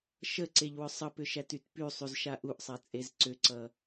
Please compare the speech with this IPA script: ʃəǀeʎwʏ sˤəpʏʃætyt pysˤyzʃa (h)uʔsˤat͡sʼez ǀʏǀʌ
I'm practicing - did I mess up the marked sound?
yes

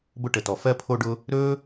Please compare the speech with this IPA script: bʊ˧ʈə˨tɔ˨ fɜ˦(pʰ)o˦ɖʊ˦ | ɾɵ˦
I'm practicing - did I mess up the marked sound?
no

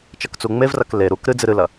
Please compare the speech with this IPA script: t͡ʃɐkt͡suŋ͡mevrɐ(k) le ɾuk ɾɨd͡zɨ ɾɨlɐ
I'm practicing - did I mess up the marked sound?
no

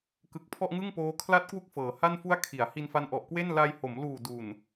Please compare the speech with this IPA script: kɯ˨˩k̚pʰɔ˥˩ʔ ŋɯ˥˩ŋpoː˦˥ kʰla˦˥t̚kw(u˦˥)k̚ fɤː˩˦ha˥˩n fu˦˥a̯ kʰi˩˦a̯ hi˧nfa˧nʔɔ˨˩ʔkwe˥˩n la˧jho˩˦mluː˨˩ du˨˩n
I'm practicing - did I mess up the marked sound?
no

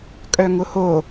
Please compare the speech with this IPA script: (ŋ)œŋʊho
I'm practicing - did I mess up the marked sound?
yes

